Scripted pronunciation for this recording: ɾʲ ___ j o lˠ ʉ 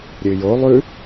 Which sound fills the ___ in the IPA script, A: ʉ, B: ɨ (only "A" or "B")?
B